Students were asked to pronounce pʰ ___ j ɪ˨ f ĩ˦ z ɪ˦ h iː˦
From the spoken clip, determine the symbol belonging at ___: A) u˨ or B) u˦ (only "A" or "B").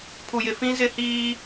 A